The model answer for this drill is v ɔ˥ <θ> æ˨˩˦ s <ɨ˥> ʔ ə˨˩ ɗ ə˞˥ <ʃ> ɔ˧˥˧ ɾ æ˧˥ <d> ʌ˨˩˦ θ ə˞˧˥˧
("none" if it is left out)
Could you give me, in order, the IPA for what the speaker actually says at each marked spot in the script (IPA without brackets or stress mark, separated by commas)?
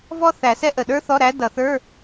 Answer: θ, ɛ˥, θ, d